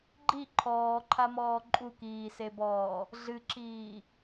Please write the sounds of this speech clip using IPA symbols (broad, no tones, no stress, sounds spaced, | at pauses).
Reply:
ɡ͡ǃ i ǃʰ ɔː ǃʰ a m ɔː ǃʼ u k iː s e b ɔː | ɮ ɨ ǁ iː